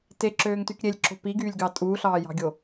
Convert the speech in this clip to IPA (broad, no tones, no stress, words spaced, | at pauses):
teǁøːŋtyk ɾʲelʲǁo̤ piɡyːlʲɡɑ tʼuːɬɑːjɑ̤ɡʲo